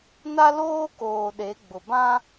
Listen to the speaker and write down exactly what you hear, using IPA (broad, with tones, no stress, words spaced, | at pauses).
na˦loː˦koː˨ ɗe˨˦ɡ͡bʊ˨bã˦